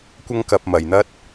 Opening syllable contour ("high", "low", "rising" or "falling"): high